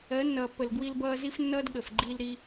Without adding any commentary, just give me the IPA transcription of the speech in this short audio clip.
ɜ˨˦ nː ʌː˨ pː ə˨ l ɡ w i˧ l b ʌː˧ z i˦ f nː ʌː˦ d ɠ ə˨ f ɡ͡ǃ i˧ l ɾ i˧

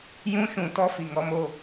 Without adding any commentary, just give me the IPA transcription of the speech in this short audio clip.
j ũ˦ ʃ ũ˨ t ɔ˦ f i˨ ŋ ɔ˦ m o˧

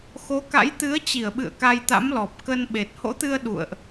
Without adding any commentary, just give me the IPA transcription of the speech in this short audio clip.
x o˨˦ k a̰˧˥ j t̪ ɨ˨˦ ə̯ t͡ɕ i˧˩ ə̯ ɓ ɨ̰˧˨ ə̯ k a˧ j t̪ a̰˧˥ m l ɔ˨˩ p̚ k ə˧ n ɓ e˨˩ t̚ h o̰˧˥ t̪ ɨ˧ ə̯ ɗ ṵ˧˨ ə̯ ʔ

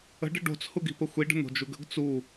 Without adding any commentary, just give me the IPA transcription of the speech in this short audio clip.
ə̤ ɖ ə̤ ɖ o̤ t͡s h u ɡ i̤ p ə xʷ i ɖ ə̤ n̪ o̤ d͡ʒ u ɡ ə̤ ɡ t͡s u

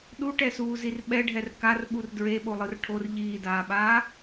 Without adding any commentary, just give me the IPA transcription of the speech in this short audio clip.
ɗ u ʈ ɛ s uː z i r ɓ ɛ ɖʱ ɛ r k a r ɓ u r d ɹ e ɓ o lˠ ɯ r ʈʰ o r ʎ iː d aː ɓ aː

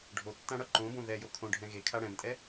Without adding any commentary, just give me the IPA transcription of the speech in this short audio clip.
ɖʱ o tː ã ɽ ʌ ǃ õ b õ ð ɛ j o kʰ õ ɖʱ ɛ̃ ɣ e kʰ a ɽ ɛ̃ m tʼ ɛ

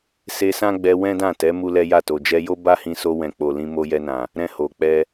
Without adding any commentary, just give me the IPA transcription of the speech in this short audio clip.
s e˧ s ã˦ ɡ͡b ɛ˧ w ɛ̃˦ d ã˦˨ t ɛ˨˦ m u˦ l ɛ˦ j a˦˨ t o˨ d͡ʒ ɛ˧ j o˦ b a˦ h ĩ˧ s o˧ w ɛ̃˨ k͡p o˨ l ĩ˧ m o˧ j ɛ˧ n ã˨ | ɾ ɛ̃˦ h o˧ k͡p ɛ˦

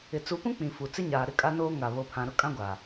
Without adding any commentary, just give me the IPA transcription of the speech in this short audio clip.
ɪ˨ t͡s u˨˦ p ũ˦ k͡p ĩ˨ f u˨ t͡s ɪ˦ ɲ aː˨ ɾ ɪ˦ kʼ a˦ n oː˦ ŋ a˨ β o˨ pʰ ã˨ ɾ ʊ˦ kʼ ã˦ ɡʷ aː˨

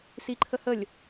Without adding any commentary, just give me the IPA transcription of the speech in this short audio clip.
s i ǃʰ ə h ə lʲ

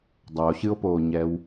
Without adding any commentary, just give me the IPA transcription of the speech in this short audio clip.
dˤ a o̯ ɕ ɨ o̯ p oː ɲ ɛ w

